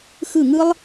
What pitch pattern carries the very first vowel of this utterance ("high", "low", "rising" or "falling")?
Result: falling